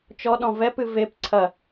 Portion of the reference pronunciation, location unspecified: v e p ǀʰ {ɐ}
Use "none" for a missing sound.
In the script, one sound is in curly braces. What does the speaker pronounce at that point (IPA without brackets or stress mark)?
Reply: ɐ